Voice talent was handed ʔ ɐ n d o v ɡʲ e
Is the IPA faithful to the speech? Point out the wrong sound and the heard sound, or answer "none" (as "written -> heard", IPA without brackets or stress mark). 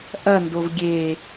none